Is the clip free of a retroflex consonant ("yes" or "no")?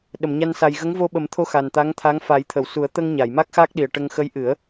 no